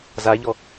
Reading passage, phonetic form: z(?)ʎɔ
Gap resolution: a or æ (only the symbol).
a